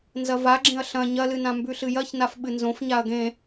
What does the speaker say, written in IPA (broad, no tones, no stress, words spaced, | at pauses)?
nzɐvaɡ͡ǁẽɐ̯ ɬɐ̃ ɲɐlɨnã mbʉɬɨjɐçnaf ɓɨnzõf ɲaɐ̯ɡẽ